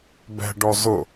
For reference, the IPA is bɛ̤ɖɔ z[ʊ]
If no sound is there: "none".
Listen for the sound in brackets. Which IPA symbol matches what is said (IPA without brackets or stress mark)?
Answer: ʊ